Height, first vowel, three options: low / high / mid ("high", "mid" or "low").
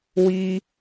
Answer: high